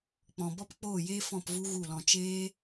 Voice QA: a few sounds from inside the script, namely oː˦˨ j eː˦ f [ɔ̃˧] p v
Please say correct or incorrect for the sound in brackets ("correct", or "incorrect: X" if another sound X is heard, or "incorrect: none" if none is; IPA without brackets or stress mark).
incorrect: ɔ̃˦˨